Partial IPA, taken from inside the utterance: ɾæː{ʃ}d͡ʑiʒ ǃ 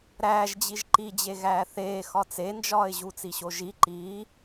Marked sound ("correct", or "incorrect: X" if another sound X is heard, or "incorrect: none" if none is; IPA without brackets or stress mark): incorrect: ʒ